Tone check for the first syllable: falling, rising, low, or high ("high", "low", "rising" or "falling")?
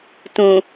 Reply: low